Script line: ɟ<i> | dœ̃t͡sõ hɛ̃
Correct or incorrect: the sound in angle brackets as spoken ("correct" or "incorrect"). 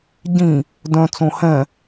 incorrect